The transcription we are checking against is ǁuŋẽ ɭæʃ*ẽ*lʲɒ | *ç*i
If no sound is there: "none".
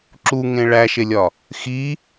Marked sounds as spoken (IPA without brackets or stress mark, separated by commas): e, x